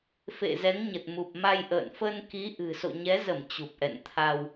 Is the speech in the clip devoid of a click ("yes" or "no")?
yes